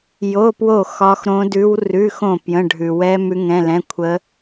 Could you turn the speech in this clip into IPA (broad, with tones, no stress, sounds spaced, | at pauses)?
j o˧˥˧ p w o˥˨ x ɒ˦˥ x ɾ õ˦˥ d ʉ˦˥ w r ʉ˧˥˧ x õ˥˨ p j ə̃˧˥˧ ɖʱ ʉ˨ w ɛ˦˥ m ʉ˦˥ ŋ ɛ̃˧˥˧ l ɛ̃˧˥˧ kʷʰ ə˦˥